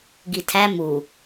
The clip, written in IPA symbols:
ɡ i tʰ æ m u

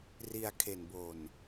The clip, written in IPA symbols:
r i˧ a̯ kʰ e˨˩ n b o˨˩ n

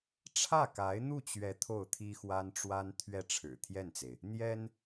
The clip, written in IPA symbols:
ʈ͡ʂʰ ä˥˩ k a˧˥ ɪ̯ n̪ u˥˩ t͡ɕ ɥ ɛ˧˥ t̪ʰ o˥˩ ʊ̯ t̪ʰ i˥ x w a˥ n ʈ͡ʂ w a˥ n t̪ʰ ɥ ɛ˥˩ ʈ͡ʂʰ ɻ̩˨˩ t̪ʰ j ɛ˥˩ n t͡s e˩ ɪ̯ | n̪ j ɛ˥ n

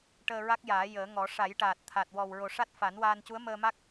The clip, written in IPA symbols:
ʈ əː˧ ɹ a˦˥ k̚ j aː˨˩˦ j əː˨˩˦ ŋ ɔ˨˩˦ ʂ a˨˩˦ j ʈ aː˨˩ t̚ t̪ʰ a˨˩ t̚ w ɔ˨˩ w ɹ o˨˩ ʂ a˦˥ t̚ f a˨˩˦ n w aː˧ n c u˧˥ ə̯ m əː˧ m a˦˥ k̚

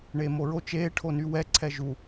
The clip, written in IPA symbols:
ɳ eː m o ɹ o t͡ʃ eː ʈʰ o n y w ɛ ǀʰ ɛ ʒ u

